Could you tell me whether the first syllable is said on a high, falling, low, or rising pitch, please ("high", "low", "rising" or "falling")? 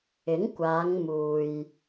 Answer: rising